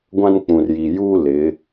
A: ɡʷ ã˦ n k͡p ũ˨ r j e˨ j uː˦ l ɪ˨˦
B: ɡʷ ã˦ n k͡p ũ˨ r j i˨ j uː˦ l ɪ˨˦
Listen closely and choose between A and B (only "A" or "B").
B